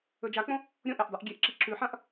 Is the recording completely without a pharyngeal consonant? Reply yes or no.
no